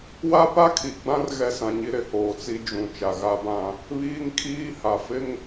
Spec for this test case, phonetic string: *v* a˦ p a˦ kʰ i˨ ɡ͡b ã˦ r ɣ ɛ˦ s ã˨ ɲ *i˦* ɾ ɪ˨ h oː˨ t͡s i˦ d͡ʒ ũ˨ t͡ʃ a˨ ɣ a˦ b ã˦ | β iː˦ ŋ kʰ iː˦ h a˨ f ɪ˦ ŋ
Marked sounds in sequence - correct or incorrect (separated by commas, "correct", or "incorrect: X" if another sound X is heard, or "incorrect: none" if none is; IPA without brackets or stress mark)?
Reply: incorrect: w, correct